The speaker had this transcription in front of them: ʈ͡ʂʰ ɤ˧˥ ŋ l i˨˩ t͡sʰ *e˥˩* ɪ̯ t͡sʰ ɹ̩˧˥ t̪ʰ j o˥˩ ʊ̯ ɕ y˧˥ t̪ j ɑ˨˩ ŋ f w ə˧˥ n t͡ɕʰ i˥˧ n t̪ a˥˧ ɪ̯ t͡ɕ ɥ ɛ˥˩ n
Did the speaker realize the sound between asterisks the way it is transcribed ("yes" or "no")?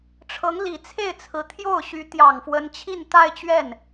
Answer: yes